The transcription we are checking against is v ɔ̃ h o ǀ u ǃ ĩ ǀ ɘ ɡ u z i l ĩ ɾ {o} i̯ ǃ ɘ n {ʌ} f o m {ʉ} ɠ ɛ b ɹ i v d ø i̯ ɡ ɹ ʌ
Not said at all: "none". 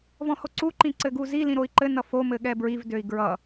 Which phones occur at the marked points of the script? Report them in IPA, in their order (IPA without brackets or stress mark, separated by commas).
o, ʌ, ɘ